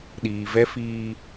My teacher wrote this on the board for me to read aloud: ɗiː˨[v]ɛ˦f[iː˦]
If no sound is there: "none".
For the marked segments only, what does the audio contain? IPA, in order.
v, iː˦

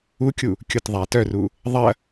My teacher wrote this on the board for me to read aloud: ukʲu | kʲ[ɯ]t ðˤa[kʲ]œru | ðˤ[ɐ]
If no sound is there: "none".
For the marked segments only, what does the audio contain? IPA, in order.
ʊ, t, ɐ

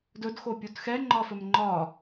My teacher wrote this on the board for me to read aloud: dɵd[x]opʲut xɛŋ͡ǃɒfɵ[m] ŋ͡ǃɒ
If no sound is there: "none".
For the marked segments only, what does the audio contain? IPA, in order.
x, m

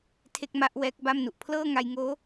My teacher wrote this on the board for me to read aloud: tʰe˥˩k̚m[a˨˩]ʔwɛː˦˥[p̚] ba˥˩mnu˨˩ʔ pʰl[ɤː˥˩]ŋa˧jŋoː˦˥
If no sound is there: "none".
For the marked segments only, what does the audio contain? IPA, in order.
a˥˩, k̚, ɤː˥˩

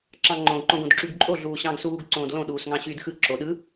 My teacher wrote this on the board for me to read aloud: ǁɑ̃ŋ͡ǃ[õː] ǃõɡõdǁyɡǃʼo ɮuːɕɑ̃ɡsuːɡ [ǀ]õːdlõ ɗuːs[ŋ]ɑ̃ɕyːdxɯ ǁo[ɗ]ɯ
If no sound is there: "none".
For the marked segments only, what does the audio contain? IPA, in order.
õ, ǀ, ŋ, ɗ

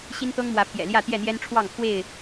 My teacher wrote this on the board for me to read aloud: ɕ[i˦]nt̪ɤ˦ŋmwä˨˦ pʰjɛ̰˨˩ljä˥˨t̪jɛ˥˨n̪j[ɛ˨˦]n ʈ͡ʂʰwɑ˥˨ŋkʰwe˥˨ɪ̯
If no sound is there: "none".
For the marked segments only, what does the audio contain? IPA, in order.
i˦, ɛ˦

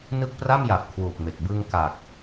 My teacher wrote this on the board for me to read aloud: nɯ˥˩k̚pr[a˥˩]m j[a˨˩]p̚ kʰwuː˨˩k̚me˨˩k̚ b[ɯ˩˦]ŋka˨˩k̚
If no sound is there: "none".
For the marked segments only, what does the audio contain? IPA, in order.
a˥˩, a˨˩, ɯ˧

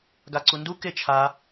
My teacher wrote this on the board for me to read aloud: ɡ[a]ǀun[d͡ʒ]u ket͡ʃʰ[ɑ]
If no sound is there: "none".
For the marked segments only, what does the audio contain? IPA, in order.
a, d, a

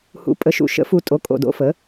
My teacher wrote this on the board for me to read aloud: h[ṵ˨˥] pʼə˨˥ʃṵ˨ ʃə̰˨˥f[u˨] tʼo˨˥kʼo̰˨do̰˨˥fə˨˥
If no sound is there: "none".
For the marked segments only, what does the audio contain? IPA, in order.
ṵ˨˥, u˨

